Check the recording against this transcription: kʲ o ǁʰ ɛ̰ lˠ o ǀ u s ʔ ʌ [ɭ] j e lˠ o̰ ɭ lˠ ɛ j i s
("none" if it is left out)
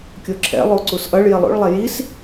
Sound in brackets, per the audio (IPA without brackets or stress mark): ɭ